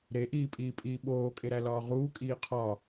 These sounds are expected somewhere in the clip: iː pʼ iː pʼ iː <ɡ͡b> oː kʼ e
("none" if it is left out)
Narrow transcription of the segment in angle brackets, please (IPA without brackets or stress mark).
ɓ